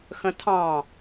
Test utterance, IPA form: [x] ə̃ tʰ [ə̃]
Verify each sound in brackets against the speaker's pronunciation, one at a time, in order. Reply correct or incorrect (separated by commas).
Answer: correct, incorrect